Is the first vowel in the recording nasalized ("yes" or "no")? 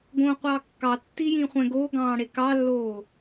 yes